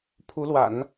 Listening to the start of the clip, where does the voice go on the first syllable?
rising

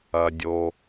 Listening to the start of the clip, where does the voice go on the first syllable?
low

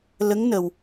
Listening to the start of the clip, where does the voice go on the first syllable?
rising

